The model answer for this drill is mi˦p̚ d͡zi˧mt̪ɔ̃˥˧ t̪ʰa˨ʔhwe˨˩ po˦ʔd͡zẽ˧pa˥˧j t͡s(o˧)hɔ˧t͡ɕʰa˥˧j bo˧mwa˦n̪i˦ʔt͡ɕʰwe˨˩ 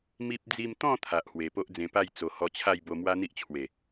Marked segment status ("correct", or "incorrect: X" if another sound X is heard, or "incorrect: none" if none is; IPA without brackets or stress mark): incorrect: o˨˩